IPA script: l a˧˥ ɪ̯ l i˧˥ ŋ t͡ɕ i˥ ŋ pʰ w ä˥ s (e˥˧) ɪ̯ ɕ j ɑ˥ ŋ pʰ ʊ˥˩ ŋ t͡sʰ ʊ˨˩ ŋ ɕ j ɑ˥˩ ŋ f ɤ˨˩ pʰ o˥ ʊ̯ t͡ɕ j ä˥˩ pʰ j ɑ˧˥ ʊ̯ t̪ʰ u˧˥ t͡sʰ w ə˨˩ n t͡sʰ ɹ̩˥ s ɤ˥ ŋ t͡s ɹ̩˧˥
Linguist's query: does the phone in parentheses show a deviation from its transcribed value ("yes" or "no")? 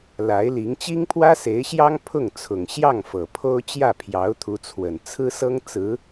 yes